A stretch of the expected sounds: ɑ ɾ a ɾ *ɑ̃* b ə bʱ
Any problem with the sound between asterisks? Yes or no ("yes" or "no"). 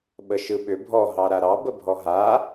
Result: yes